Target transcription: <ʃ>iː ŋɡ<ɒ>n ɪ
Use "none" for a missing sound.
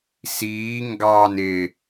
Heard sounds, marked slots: s, ɑ

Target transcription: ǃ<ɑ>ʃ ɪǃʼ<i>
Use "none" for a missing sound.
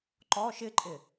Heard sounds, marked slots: ɔ, ɪ

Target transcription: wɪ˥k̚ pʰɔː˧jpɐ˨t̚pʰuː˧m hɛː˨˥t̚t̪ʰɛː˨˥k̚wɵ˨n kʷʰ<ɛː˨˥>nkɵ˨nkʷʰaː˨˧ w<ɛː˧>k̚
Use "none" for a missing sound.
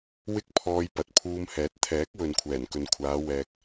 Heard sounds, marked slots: ɛː˨˩, ɛː˧

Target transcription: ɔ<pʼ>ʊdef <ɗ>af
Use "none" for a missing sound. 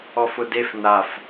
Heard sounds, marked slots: f, n

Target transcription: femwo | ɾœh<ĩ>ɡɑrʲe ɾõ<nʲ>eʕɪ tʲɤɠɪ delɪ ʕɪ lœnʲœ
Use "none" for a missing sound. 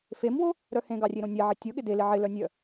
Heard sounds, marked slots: ẽ, nʲ

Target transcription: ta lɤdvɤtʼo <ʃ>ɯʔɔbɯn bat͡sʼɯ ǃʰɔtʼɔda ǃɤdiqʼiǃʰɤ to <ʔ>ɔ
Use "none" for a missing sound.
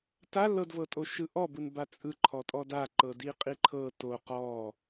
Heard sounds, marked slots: ʃ, q

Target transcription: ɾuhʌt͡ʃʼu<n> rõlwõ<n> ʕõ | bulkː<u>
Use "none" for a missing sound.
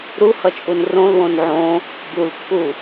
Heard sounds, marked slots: n, n, u

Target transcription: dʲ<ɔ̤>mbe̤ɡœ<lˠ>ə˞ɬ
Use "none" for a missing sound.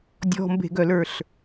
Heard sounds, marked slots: ɔ̤, l

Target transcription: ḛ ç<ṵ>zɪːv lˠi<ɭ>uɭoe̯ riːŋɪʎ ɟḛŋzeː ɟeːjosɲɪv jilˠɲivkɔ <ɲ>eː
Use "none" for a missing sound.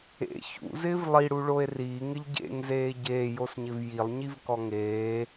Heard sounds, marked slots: ṵ, ɽ, ŋ

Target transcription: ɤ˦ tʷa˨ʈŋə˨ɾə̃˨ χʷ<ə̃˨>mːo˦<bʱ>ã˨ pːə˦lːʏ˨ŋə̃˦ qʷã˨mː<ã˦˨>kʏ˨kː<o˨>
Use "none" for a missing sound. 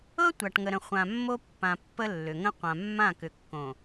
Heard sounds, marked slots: ã˨, pː, ã˦˨, õ˨

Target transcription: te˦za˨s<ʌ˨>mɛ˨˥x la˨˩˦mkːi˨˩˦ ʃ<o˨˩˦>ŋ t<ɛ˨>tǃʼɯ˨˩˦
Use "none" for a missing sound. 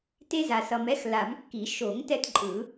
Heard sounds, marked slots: ʌ˨, o˨˩˦, ɛ˦

